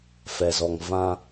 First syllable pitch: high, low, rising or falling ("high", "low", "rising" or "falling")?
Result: low